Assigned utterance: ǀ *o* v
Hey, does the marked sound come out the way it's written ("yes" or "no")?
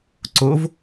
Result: yes